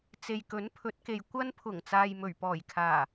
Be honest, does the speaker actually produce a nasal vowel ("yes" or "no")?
no